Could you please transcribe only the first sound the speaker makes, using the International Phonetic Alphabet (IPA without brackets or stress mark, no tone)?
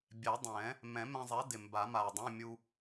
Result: bʲ